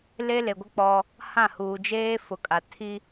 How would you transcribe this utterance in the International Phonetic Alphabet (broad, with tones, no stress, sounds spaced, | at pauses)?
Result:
l e˦ l e˨ ɡʷ ɪ˦ k͡p ɔ˦ | h ã˦˨ h uː˨ d͡ʒ eː˦ f ʊ˨ kʼ a˨ tʰ i˦